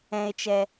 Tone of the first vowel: high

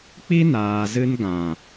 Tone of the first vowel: high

